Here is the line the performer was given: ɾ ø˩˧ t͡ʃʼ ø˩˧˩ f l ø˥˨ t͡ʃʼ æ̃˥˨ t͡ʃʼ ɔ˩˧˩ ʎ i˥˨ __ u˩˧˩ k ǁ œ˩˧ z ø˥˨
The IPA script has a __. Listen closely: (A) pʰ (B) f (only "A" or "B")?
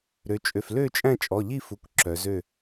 B